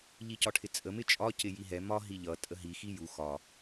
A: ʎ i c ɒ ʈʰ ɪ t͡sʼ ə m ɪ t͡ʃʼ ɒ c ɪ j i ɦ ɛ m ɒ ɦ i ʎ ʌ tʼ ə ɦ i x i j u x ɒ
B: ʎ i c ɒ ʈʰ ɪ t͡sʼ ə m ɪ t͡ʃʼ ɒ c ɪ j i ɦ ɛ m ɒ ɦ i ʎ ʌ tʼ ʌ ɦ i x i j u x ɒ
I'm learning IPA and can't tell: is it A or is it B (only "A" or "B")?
A